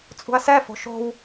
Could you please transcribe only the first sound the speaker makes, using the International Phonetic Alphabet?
t͡sʼ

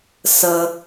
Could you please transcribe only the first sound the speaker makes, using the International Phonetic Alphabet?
s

